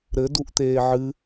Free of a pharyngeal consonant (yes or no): no